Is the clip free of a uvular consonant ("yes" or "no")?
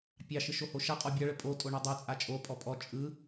no